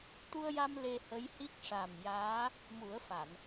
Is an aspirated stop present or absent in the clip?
absent